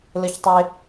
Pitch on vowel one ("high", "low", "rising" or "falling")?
high